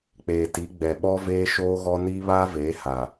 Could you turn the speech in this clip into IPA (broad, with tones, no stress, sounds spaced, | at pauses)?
k͡p eː˨ t i˨˦ ɡ͡b ɛ˨ ɓ ɔ˦ v eː˦ ʃ oː˦ ɣ ɔ˦ n iː˦ β aː˦ v eː˨˦ h a˨